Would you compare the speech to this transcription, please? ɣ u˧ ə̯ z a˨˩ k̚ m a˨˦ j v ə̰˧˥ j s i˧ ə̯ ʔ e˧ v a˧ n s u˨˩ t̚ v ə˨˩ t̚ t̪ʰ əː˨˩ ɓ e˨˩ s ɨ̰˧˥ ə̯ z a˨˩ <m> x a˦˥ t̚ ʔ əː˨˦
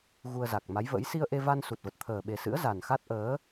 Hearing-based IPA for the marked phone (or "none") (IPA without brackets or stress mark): n